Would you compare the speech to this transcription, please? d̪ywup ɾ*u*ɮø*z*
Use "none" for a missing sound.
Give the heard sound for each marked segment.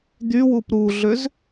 u, z

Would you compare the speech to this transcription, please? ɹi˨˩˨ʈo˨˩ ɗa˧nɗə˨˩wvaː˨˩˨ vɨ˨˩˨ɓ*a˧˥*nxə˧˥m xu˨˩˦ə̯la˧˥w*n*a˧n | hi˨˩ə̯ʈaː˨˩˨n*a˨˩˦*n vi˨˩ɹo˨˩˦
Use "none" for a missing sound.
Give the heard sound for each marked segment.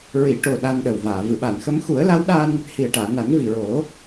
a˨˩˨, ɗ, a˨˩˦

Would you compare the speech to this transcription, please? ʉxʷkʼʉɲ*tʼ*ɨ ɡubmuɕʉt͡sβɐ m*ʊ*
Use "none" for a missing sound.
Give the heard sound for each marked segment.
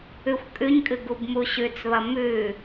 kʼ, ʉ

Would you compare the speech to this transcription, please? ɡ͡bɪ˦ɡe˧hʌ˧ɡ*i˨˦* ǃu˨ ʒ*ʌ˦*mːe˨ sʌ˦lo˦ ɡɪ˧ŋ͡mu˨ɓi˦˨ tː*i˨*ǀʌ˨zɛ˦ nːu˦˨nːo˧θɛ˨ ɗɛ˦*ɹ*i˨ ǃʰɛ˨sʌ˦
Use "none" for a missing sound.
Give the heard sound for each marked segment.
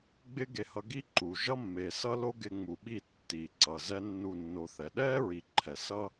i˦, ʌ˦, i˨, ɹ

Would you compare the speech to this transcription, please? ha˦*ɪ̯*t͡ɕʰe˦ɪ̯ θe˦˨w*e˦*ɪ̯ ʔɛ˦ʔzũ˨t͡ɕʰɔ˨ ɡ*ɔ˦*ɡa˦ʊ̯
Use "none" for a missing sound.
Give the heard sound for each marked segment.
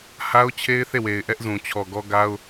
ʊ̯, e˨, ɔ˦

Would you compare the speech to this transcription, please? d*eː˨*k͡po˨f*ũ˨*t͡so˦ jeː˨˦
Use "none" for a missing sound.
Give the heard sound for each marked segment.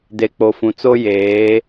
e˨, ũ˨

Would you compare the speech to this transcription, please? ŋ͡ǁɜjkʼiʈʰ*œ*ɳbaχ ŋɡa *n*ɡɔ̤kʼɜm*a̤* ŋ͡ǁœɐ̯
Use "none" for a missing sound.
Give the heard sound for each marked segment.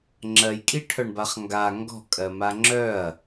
œ, ŋ, a

